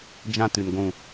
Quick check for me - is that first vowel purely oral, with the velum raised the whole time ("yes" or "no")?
no